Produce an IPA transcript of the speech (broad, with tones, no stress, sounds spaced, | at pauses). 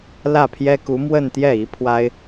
l ä˥˩ pʰ j ɛ˥ k u˧˥ m w ə˥˧ n t̪ j ɛ˥˩ i˧˥ pʰ w a˥ ɪ̯